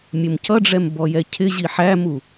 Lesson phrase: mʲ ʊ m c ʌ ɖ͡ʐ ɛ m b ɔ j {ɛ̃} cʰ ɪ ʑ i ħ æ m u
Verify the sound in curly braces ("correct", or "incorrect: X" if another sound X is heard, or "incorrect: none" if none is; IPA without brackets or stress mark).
incorrect: ɛ